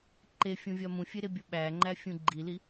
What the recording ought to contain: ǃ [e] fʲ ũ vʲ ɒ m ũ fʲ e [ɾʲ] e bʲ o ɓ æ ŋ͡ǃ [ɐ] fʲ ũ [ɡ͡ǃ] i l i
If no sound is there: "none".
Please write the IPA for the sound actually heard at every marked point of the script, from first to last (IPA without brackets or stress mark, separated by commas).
e, ɾ, æ, ɡ͡ǃ